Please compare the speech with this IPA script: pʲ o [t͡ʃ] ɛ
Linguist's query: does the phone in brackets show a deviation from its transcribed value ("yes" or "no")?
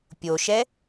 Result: yes